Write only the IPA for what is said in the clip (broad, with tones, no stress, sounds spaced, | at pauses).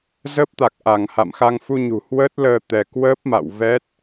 z əː˦˥ p̚ t̪ a˨˩ k̚ ʔ a˧˩ ŋ h a̰˧˨ m x a˧ ŋ f u˧ ɲ ṳ˨˩ h w əː˦˥ t̚ l əː˧ t̪ ɛ˧ k w əː˦˥ p̚ m a̰˧˨ w v ɛ˦˥ t̚